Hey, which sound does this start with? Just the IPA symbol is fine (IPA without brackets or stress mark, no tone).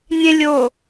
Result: nʲ